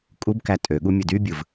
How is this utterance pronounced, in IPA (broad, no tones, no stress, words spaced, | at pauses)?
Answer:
kʼubkæ tʼøɠu mʲɯdybʲɯv